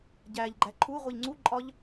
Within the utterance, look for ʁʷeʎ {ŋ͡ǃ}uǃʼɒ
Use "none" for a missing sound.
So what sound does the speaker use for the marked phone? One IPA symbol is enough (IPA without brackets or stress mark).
ŋ͡ǀ